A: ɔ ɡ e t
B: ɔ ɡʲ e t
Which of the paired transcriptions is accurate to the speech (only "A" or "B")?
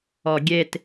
B